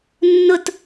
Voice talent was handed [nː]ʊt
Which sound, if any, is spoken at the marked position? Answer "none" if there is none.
nː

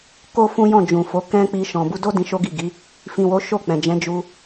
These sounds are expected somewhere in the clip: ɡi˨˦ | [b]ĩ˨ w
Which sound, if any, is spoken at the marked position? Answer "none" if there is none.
f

